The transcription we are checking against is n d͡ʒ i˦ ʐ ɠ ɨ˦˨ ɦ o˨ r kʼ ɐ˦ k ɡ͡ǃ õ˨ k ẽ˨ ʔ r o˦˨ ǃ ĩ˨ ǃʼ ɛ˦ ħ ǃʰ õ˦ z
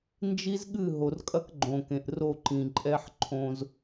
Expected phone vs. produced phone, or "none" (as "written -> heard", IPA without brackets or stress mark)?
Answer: ʐ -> z